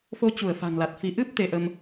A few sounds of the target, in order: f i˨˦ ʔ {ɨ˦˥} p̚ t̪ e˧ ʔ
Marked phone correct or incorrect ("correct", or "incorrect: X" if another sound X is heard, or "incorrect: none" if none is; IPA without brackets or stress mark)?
correct